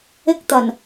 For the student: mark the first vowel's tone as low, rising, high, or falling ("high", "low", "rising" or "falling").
high